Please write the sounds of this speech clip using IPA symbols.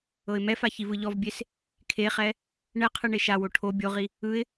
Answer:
ɤɪ̯mɛfa çivɯʎɔvbʲes | kʰeχɛ | ɳɛqʰɯ ɳeʃawo ʈʰo bʲoʁi | ɯɪ̯

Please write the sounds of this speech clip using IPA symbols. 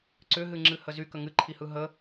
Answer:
ǀʏɦɨŋ͡ǁɨhə zykə ŋɨǃʰihɯ ɦə

